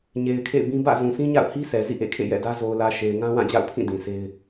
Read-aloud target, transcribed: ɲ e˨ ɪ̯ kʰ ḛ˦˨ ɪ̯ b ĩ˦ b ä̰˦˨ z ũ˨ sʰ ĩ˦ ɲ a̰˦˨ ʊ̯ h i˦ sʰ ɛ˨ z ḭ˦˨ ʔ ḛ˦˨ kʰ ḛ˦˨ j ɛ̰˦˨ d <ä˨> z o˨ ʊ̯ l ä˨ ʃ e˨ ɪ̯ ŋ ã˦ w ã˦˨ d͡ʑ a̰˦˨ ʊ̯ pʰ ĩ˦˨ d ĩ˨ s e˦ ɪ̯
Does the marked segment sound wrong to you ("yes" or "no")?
yes